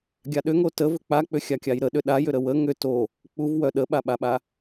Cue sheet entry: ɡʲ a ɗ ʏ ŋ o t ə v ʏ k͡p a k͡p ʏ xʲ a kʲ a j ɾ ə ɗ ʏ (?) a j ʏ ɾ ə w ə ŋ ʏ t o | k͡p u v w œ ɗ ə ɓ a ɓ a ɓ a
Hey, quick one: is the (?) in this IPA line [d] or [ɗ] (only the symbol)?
ɗ